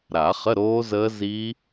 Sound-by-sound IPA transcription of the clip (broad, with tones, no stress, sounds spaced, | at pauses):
ɾ a˨˩˦ χ ə˧˥˧ ɾ oː˦˥ z əː˦˥ z i˦˥